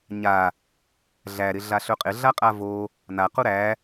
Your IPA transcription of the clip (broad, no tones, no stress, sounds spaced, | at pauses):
ɲ a | ɮ æ ɾ ɪ ɮ a ɬ ɵ qʼ ɪ ɮ a qʼ a v o | n a q u ɾ æ